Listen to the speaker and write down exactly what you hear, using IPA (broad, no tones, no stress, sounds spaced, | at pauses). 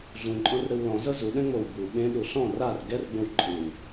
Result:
ɮ ũ ǃʼ ɔ̃ r ɾ ɯ w l ɔ̃ z ɤ z u ɗ ɛ̃ ŋ͡m o w b u ɓ ẽ ɗ u ɬ ɔ̃ r a r ɡ ɛ r ɡ͡b ẽ w ǃʼ ɯ w